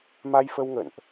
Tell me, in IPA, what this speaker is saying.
ma˧jfə˧wŋə̰˧˨nʔ

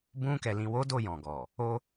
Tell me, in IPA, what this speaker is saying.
bũ˧kɛ˨ lĩ˨wo˨˦ do˦˨jɔ̃˨ɡɔ˨ | o˧

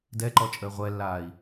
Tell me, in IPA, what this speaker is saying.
dɛǃɔt͡ʃʼəː ʁʷɛlːaːi̯

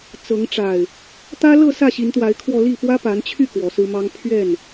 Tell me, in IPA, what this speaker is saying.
t͡sɤ˨˦ŋʈ͡ʂa˨˩ɪ̯ | t̪ä˦lɤ˥˨ sä˥˨ɕi˨˦nt̪wa˨˦ɪ̯kʰwɔ˧ li˥˨pwä˦pa˨˦nt͡ɕʰy˥˨ kwɔ˨˦sɹ̩˦mɑ˦ŋ pʰɥɛ˥˨n

